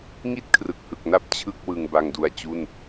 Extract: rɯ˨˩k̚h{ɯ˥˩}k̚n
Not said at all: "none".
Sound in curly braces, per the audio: ɯ˨˩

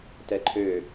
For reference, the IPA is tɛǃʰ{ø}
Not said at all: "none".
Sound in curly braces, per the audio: ø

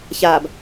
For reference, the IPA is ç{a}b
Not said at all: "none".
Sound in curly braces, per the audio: a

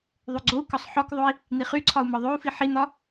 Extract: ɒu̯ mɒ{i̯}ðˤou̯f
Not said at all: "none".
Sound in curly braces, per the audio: none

